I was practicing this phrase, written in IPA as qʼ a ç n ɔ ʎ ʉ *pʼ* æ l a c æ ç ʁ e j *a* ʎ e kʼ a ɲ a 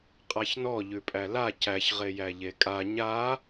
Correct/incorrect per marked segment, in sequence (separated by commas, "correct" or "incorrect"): correct, incorrect